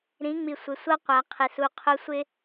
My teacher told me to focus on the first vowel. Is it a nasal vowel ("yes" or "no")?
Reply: yes